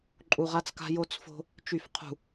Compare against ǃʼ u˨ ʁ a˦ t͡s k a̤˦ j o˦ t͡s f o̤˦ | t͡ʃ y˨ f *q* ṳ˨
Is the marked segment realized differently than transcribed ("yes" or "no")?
yes